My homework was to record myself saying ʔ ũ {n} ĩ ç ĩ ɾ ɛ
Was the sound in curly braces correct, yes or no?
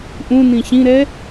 yes